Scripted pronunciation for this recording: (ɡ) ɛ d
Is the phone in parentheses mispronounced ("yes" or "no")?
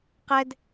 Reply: yes